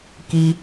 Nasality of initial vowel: oral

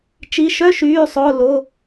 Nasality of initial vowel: oral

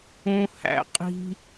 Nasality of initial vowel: nasal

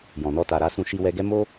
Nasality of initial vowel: nasal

